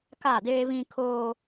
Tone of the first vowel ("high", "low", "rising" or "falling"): falling